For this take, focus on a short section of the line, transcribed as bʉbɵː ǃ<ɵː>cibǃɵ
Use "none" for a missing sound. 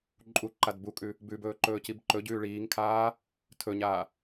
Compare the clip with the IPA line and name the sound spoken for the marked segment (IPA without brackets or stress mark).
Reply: ɵː